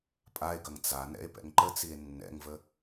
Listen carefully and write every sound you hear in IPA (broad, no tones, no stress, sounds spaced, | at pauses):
pʼ a e̯ ɡ ɐ ŋ t͡s a n ɛ̰ e̯ p ɛ̰ ŋ ǃ ə t͡s i e̯ nː ɛ̰ ŋ v ə